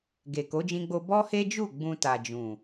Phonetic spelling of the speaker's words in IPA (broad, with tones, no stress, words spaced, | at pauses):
ɡe˨ko˨˦d͡ʒĩ˧ɡ͡bo˧ bɔ˦he˦d͡ʒu˦˨ ɡ͡bũ˧ta˨d͡ʒũ˨